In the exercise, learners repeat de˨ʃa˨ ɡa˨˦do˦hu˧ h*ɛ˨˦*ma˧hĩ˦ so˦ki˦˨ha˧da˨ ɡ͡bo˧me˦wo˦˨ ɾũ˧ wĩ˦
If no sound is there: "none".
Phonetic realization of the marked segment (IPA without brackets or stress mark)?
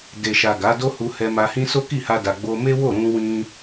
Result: ɛ˧